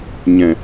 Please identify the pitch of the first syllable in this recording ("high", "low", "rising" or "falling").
low